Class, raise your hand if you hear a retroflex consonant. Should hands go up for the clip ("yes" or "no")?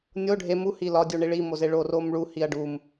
yes